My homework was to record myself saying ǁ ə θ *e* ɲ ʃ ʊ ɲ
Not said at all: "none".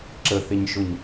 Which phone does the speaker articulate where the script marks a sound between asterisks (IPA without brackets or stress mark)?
e